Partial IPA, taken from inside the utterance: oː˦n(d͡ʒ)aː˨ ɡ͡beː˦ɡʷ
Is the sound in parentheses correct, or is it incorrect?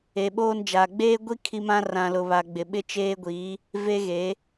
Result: correct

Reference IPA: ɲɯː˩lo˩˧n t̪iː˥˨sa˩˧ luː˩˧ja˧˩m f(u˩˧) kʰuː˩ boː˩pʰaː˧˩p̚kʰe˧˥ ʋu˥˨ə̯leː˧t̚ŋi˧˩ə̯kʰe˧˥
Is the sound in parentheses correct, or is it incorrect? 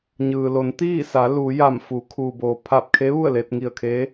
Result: correct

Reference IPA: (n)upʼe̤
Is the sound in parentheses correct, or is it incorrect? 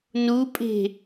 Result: correct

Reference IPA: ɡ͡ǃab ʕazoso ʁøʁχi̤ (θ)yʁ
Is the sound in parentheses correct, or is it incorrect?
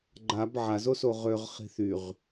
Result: correct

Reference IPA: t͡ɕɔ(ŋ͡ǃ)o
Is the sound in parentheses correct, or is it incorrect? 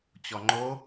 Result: correct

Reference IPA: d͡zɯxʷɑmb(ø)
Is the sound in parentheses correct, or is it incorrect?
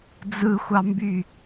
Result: incorrect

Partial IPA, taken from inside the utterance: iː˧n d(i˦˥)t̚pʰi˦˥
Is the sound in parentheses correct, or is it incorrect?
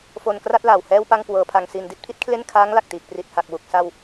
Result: correct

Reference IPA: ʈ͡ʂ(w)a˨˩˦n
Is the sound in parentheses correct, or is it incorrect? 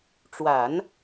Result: correct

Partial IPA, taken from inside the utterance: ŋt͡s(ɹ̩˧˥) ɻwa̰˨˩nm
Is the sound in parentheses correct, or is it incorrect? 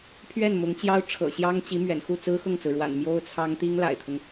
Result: incorrect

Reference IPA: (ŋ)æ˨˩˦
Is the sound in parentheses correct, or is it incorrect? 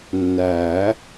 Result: incorrect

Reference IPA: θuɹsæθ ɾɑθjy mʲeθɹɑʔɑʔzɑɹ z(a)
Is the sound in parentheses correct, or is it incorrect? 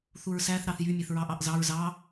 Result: incorrect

